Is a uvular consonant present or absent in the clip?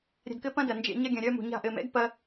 absent